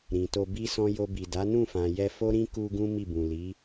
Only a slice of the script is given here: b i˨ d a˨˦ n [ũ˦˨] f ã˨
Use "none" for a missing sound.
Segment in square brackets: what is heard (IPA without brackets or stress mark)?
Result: ũ˦˨